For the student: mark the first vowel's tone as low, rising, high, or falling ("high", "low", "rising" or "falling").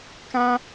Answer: high